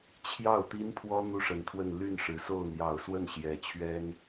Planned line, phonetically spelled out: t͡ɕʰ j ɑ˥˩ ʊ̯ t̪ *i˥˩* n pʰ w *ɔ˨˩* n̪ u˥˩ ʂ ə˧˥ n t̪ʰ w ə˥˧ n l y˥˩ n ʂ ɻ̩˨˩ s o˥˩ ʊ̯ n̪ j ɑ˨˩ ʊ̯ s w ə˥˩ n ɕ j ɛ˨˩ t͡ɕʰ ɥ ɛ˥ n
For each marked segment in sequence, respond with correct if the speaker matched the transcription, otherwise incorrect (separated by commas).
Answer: incorrect, incorrect